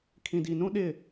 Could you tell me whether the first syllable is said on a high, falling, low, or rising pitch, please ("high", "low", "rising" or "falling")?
low